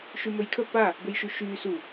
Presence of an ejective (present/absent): absent